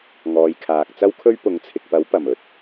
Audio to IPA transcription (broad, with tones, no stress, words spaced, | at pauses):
ŋɔː˨˧jkʰaː˨k̚t͡sɐ˥wkʰɵ˥ɥ pʊ˨˧ŋt͡sʰɪ˨k̚pɐ˨˥w pɐ˨˩mɵ˨˥t̚